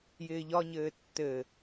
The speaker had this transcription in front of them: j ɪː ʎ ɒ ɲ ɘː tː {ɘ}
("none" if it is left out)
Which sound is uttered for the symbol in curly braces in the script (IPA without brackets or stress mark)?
ɘ